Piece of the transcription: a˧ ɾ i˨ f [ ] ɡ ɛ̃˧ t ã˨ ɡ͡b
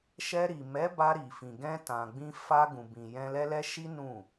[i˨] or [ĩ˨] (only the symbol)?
ĩ˨